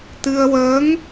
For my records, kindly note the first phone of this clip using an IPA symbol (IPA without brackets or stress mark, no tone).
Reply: t̪